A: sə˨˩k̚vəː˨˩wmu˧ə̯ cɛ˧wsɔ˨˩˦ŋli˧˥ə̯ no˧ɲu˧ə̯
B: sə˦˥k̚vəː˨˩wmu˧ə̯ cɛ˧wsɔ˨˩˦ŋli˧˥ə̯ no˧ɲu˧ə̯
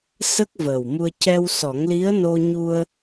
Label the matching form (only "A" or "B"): B